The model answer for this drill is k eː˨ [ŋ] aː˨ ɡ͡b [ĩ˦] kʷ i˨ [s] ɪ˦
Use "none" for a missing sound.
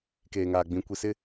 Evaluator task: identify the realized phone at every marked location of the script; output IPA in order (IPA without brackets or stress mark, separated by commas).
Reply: ŋ, ĩ˨, s